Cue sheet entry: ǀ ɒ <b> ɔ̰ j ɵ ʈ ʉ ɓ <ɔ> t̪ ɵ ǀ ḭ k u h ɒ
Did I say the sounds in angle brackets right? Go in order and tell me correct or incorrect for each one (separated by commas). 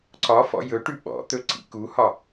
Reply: incorrect, incorrect